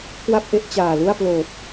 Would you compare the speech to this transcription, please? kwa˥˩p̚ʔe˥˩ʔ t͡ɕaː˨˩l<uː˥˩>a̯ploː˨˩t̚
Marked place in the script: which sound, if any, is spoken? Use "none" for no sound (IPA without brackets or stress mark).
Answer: u˥˩